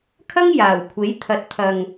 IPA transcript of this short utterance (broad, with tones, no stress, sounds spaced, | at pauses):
kʰ ɐ˥ ŋ j aː˨˩ w kʷʰ e˨˥ j t̪ʰ ɐ˨ t̚ t̪ʰ ɐ˨ ŋ